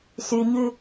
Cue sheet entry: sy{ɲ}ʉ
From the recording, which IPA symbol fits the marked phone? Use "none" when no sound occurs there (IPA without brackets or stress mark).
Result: ɲ